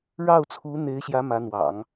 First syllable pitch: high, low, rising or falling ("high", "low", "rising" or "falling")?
falling